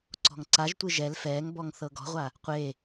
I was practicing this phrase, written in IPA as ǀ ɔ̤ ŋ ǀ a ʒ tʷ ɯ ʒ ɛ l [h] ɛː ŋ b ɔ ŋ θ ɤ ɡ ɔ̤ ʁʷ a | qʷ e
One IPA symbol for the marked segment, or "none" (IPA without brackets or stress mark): f